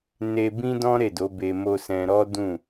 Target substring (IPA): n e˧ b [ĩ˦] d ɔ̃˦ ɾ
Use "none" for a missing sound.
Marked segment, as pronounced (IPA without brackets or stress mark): ĩ˦